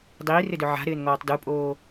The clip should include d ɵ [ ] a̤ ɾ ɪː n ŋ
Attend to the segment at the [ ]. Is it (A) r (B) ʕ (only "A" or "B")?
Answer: B